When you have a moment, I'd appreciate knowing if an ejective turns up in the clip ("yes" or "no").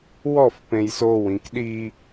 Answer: no